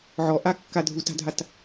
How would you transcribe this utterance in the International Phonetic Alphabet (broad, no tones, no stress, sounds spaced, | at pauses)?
ʕ ɔ ʔ a kː a dʱ u t a̤ dʱ a t